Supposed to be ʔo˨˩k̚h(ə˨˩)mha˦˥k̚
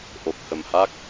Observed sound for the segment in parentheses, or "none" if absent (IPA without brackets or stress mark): ə˨˩